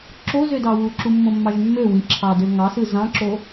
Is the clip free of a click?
no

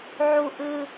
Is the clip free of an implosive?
yes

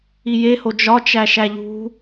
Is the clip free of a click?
yes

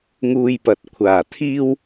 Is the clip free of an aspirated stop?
no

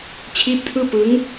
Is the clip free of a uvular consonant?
yes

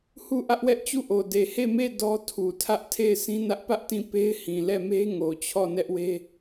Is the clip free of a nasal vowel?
no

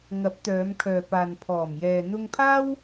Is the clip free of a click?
yes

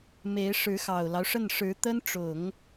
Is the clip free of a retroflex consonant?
no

